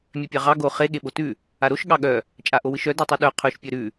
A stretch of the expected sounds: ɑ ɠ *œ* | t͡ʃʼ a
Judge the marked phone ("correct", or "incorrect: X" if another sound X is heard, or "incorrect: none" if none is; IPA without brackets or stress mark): correct